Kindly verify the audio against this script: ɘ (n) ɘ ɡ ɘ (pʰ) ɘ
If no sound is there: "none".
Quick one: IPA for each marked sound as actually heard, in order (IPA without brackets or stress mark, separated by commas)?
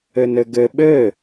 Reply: n, ɓ